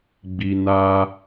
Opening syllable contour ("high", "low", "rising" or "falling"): low